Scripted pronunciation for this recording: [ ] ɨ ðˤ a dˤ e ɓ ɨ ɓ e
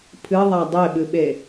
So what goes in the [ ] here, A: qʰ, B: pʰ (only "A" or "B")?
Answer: B